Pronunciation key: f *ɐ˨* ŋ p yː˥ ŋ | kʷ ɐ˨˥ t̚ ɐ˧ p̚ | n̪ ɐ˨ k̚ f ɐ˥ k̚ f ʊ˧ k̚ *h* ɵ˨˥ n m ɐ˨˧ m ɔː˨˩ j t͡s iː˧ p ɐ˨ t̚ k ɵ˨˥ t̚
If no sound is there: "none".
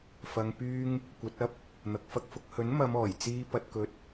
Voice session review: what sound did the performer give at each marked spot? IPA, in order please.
ɐ˧, h

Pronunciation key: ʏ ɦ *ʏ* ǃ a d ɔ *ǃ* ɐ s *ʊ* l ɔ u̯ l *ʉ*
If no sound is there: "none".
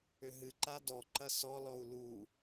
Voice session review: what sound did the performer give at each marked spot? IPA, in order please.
ɨ, ǃ, ɔ, u

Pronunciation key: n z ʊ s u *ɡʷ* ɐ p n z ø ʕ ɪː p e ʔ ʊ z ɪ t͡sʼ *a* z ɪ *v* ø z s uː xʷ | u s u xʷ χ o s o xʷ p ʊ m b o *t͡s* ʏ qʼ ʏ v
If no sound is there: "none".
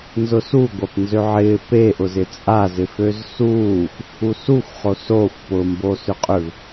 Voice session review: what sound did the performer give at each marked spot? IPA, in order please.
ɡʷ, a, f, s

